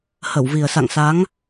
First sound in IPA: h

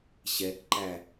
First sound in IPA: ɕ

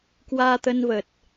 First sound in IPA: k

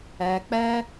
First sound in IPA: ɛ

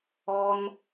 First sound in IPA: ɔ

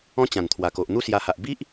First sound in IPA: ɔ̃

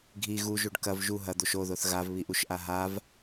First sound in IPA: ɡʱ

